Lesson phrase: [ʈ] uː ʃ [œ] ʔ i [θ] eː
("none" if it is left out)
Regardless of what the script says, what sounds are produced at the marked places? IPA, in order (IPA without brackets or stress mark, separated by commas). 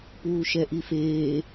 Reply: p, ɛ, f